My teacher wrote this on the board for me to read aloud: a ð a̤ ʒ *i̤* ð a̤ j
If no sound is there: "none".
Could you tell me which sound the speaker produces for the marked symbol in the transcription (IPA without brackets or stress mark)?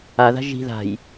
i̤